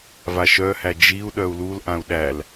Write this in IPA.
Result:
v a ʃ œ h æ d͡ʒ i u̯ ɗ œ u̯ l u l ʔ ã u̯ ɗ æ l

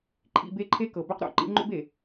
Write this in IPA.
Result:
ǃʰ ḭ˦˨ b e˦ ǃʰ e˦ k ɤ˨ b ø˦ q ɾ o̰˨ ǃ ḭ˦ ŋ͡ǃ o̰˦ b e˨

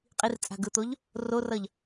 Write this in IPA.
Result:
qʼ i r t͡sʼ a̤ ɡ ɯ t̪ o ʎ | r o r ʌ ʎ

